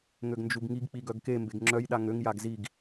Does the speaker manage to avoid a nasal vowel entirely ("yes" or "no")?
yes